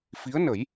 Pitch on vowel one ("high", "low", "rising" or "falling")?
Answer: rising